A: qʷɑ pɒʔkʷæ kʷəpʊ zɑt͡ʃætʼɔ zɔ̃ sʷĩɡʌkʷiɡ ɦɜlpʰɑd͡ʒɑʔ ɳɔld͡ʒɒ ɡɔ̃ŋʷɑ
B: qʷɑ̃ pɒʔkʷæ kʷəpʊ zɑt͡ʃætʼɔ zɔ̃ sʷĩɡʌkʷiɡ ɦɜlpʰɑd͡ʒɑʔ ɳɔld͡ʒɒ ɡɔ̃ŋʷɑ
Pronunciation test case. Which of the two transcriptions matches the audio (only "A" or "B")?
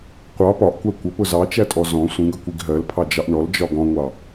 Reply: A